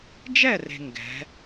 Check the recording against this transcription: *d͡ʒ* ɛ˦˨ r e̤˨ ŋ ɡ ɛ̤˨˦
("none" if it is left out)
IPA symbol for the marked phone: d͡ʒ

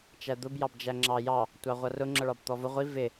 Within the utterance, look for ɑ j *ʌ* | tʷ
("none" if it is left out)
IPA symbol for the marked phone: ɑ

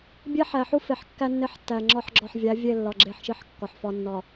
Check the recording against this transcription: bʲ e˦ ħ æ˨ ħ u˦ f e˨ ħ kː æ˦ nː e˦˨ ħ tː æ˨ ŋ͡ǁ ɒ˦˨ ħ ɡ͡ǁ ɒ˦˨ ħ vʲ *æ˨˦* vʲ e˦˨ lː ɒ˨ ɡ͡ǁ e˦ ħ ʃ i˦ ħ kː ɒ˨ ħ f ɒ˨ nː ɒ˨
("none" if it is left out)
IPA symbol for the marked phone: æ˨˦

